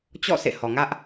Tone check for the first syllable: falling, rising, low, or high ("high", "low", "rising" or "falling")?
falling